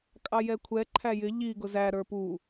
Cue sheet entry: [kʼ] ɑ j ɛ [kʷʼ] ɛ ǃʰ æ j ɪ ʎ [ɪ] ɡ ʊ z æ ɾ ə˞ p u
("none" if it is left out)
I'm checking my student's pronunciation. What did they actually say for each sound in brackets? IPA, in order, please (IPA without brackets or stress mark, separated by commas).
kʼ, kʷʰ, i